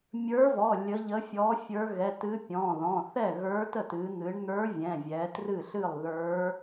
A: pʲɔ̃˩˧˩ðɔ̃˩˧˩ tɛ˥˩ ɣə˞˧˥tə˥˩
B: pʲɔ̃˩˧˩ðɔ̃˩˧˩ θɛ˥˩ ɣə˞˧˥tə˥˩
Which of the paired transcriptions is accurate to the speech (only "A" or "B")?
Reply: B